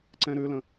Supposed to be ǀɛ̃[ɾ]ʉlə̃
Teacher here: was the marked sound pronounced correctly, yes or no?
yes